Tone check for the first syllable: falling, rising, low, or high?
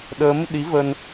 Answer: rising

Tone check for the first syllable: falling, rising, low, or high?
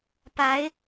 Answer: rising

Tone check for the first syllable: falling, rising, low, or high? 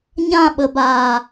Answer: falling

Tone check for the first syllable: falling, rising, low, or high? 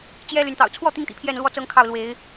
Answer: high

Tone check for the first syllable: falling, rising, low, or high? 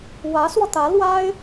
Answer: rising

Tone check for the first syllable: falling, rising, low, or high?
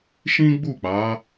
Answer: high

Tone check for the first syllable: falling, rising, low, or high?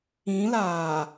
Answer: rising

